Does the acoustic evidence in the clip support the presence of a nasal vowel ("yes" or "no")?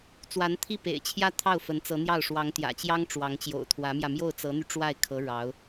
no